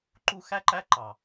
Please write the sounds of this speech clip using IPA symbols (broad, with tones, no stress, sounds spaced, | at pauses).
ǃ u˧ x æ˦ ǃ æ˦ ǃ ɑ˨